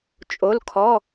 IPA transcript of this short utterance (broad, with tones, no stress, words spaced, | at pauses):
t͡ʃʼo˩˧˩lkʰɔ˩˧˩